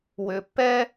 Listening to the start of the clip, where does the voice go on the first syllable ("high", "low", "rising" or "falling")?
low